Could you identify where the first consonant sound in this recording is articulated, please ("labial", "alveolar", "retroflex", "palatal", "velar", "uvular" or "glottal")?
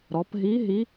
alveolar